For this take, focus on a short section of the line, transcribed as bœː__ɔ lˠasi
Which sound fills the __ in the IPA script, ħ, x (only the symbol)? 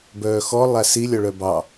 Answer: x